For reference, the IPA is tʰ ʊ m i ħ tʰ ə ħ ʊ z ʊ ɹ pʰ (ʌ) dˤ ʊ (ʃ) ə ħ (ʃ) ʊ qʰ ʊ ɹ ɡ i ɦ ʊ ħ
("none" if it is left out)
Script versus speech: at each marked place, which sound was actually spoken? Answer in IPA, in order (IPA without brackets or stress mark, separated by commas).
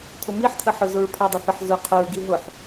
ʌ, θ, z